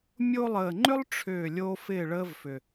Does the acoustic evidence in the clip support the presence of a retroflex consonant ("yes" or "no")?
yes